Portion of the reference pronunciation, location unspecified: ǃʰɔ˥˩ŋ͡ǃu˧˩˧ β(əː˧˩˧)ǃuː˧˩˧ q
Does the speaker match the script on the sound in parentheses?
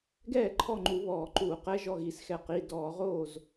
no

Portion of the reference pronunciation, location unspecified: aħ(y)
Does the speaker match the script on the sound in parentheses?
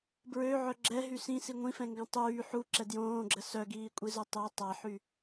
yes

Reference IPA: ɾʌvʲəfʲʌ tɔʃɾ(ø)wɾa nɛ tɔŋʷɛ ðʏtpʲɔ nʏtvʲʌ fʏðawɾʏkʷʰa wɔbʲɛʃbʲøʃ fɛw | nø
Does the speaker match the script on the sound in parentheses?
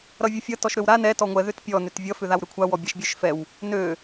yes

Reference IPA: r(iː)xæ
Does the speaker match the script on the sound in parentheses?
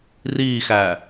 yes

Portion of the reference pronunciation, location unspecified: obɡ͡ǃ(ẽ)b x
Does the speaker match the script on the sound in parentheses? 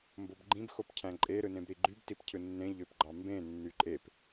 no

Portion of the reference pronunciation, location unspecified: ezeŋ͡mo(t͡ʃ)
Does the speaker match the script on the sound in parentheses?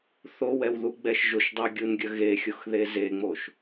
no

